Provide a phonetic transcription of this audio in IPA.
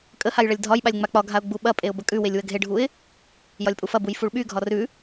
kʼ ə h a j ɭ ɐ lʲ dʱ ɒ j ɓ a lʲ ŋ͡m a k͡p ɒ ɡʱ a ʊ̯ ɡ͡b u ɓ ɐ pʼ e ʊ̯ b ə kʼ ʉ w e lʲ w ə ɡʱ e ɖʱ u ɪ̯ | j ɒ lʲ pʼ u f ɐ b u j f u ɭ ɓ y ɡʱ ɒ r ʉ

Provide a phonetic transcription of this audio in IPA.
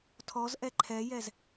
tʰ ɔ z ʔ ɛ ǃʰ ɛ j ɛ z

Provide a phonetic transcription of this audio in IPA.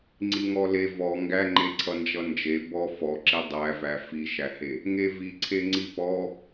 ŋ͡ǀ i ŋ ɔ l e v ɔ ŋ ɡ æ ŋ͡ǃ e ǀʰ ʌ n d͡ʒ ʌ n d͡ʒ e b ɔ f ɔ ǁ i dˤ æ v æ f i ʃ æ h e | ŋ e v i ǀʰ e ŋ͡ǀ i p ɔ

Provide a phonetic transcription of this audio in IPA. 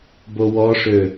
b o w ɔ ʂ ø

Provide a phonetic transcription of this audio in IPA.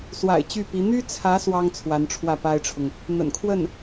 s w a̰˨˩ ɪ̯ t͡ɕ y˥˩ p i˧˥ n̪ y˥ t͡sʰ ä˧˥ s w ɑ˥ ŋ t͡sʰ w a˧˥ n ʈ͡ʂʰ w ä˥˩ p a˥ ɪ̯ ʈ͡ʂʰ ʊ˨ ŋ | n̪ ə̰˨˩ n kʰ w ə˥˩ n

